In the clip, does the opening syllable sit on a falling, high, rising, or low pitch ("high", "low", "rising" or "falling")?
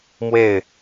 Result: falling